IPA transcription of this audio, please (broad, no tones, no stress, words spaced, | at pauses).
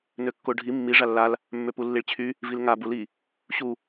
nøkːoɖʱi mːi ʐalːal | mːøpulːiɭt͡ɕʰy | vilŋa buli | ɕu